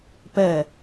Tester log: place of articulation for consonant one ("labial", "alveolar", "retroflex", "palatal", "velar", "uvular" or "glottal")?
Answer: labial